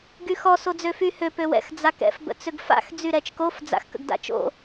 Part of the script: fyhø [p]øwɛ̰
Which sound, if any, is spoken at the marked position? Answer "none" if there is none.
p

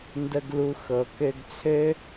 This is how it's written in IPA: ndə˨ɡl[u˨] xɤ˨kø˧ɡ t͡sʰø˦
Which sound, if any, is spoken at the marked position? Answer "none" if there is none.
u˨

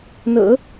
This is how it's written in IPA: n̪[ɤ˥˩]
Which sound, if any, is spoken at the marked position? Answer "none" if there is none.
ɤ̰˨˩˦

